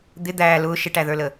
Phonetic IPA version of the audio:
d̪ ɪ d̪ æː l ʊː ʃ ɪ ʈ æ ð ə˞ l ə

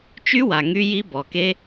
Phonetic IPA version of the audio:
t͡ʃ y˦˥ w a˩ ŋ y˦˥ j i˦˥ b ɔ˩ k e˦˥

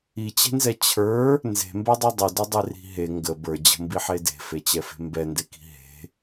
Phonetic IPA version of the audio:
i t͡ɕ e̤ n z ɛ t͡ɕʰ ə˞ | n z e̤ m b ɛ dˤ i dˤ ə d ə dˤ e r i̤ ɦ e ŋ ɡ ə b ə˞ d͡ʑ ə̤ m b i ħ e d e̤ f e t͡ɕ ɛ f e̤ m b ɛ n d e k i̤ ɦ e̤

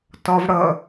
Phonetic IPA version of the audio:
t ɒ v ɽ ʌ

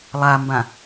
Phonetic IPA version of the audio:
lˠ a m b ã

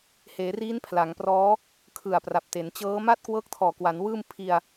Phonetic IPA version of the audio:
h eː˩˦ r iː˦˥ n pʰ l a˩˦ ŋ p r ɔː˦˥ | kʰ ɯ˨˩ a̯ p r a˨˩ p̚ t e˩˦ n t͡ɕ ɤː˦˥ m a˥˩ t̚ k w ɤː˦˥ k̚ tʰ ɔː˨˩ k w a˩˦ n w ɯː˥˩ m pʰ i˧ a̯

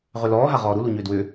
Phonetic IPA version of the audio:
ʁ ʏ l ɔː ɦ a ʁ ɔː ɾ u l u ɲ ʏː d w ʏ

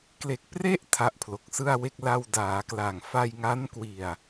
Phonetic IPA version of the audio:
k l e˨˩ k̚ p r e˥˩ ʔ tʰ a˦˥ ʔ pʰ l o˨˩ k̚ s ɯ˥˩ a̯ w e˥˩ k̚ l a˧ w d aː˩˦ k l a˨˩ ŋ f a˧ j ŋ a˦˥ n k w i˨˩ a̯

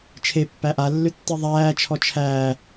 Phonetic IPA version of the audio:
t͡ʃʰ e pː æ ʔ a lː ʏ tː i ðˤ æː t͡ʃʰ ɔ t͡ʃʰ æː

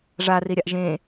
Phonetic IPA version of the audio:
ʐ a r i ɾʲ a ʔ ʒ ẽ

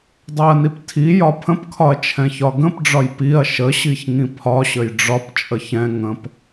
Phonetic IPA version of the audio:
dˤ ɛ ɐ̯ n i p tʰ i j ɒ pʰ ə̃ p kʰ ɒ ɐ̯ t͡ʃʰ ɛ̃ ç ɒ ɡ ə̃ p ɖ͡ʐ ɒ j p i ɐ̯ ʃ ə ɕ i ç ŋ ĩ pʰ ɒ ɕ ə j ɖ͡ʐ ɒ p t͡ʃʼ ə ç ɛ̃ ŋ ə̃ p

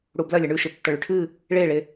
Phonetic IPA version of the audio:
ɽ u b l ɐ lʲ ɐ ɳ ʉ ʃ ɨ tː ɐ ɭ ʉ ʈʰ ɨ | ɭ e ɭ e

